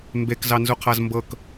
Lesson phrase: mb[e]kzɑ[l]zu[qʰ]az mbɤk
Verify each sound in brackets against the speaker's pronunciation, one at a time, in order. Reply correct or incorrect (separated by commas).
correct, incorrect, correct